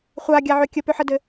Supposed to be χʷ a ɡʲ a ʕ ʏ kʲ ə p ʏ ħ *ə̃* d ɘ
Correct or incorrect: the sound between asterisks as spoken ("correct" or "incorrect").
incorrect